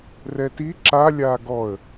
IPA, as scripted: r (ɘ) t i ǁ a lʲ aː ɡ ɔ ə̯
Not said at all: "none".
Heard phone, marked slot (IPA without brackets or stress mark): ɛ